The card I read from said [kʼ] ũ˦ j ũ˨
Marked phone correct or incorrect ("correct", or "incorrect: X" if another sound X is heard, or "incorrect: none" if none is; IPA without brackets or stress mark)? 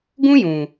incorrect: ɡ